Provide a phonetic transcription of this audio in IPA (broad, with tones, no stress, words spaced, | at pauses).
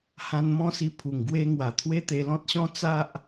hã˧nmɔ̃˦si˧ pʰu˨˩ŋɡwe˧ŋwa˨˩ t̪ʰwe˦t̪e˧ lɔ̃˦t̚ɕɔ̃˦ t͡sa˦ʔ